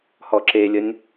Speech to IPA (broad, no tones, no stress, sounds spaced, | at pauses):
h ɔ ǁ e lʲ ə nʲ